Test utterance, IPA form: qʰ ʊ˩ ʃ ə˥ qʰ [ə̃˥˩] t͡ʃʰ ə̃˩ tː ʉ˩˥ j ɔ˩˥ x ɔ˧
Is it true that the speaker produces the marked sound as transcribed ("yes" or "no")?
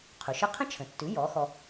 no